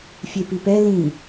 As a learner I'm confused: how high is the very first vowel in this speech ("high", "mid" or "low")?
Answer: mid